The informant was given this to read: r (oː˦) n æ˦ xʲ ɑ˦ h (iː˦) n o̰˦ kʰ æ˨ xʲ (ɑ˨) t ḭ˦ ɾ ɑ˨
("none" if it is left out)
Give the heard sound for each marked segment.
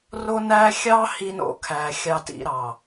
o˦, i˦, ɑ˦

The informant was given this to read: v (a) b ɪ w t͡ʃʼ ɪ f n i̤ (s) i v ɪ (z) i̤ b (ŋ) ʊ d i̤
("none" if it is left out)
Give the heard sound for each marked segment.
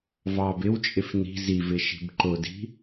ɑ, z, ʃ, ǃ

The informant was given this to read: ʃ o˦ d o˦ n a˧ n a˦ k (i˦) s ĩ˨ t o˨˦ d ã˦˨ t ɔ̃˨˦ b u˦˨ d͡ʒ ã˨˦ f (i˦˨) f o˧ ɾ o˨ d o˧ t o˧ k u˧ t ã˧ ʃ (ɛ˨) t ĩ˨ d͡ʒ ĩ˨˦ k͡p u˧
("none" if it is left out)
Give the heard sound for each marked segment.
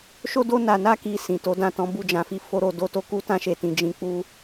i˧, i˧, e˨

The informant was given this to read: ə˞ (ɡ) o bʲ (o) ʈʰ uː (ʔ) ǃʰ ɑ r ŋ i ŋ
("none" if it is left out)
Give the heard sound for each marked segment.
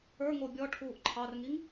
ŋ, ɔ, ʔ

